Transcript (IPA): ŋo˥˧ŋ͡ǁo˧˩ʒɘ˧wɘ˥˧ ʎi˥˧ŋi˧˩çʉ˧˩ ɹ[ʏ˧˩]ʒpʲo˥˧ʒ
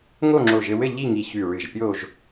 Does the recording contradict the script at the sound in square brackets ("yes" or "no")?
yes